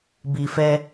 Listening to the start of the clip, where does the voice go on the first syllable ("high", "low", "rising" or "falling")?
low